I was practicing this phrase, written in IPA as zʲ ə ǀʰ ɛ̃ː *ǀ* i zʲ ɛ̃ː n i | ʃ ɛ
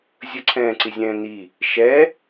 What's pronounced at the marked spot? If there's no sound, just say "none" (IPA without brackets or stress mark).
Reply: ǀ